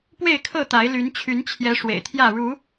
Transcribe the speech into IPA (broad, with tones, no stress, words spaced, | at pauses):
pwe˥˨ɪ̯kʰɤ˥˨t̪a˨˦ɪ̯ ly˨˦n t͡ɕʰy˨˦nt͡ɕʰjɛ˨˦ ʂwḛ˨˩ɪ̯t̪ʰjä˥˨ ɻu˨˦